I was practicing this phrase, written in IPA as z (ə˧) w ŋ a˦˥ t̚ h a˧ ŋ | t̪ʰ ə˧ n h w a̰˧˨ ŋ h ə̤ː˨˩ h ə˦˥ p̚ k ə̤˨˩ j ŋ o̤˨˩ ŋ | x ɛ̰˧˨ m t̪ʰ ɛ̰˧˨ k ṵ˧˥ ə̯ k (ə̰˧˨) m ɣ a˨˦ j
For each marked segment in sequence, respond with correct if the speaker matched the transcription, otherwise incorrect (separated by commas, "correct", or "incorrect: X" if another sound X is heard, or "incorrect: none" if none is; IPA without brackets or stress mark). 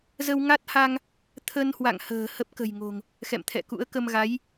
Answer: correct, incorrect: ə˧